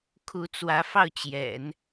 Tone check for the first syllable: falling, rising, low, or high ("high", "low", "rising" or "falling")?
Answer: rising